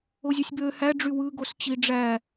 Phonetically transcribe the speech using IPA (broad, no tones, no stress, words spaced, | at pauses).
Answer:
ozʲøsʲbø hæ ɖ͡ʐywɯ ɡost͡ɕiɖ͡ʐæ